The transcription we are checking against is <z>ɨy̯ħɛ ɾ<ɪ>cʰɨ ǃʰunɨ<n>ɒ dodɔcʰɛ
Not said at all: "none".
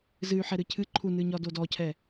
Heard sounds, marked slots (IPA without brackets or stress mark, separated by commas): z, ɨ, ɲ